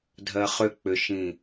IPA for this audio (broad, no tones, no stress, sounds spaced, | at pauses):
dʱ ɜ χ ʏ k͡p ʏ ʃ ĩ